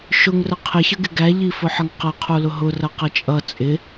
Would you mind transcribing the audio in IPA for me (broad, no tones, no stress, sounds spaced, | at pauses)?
ʃ ʊ ŋ r ə qʰ ɪ ç ə ɡ ɪ ɡ æ ʎ i f ʊ ħ ʌ ŋ q ʌ qʰ u l ʊ ɦ ʊ r ʌ q ʌ t͡ʃʼ ʌ t͡sʼ ɪ